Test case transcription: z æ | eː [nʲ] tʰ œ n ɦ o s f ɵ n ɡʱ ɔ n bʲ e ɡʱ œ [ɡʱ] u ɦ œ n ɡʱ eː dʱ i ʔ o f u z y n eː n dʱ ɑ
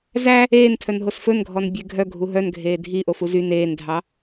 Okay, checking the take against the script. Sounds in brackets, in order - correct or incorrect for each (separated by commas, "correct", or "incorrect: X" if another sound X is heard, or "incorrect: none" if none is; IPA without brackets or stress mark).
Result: incorrect: n, correct